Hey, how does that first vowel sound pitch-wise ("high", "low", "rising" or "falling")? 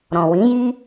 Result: low